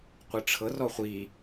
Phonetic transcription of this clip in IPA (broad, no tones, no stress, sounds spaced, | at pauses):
qʷ ɯ ʈ͡ʂʰ ɤ r ɔ χʷ i